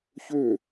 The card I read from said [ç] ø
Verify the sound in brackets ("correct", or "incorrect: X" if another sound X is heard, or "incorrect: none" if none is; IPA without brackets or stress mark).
correct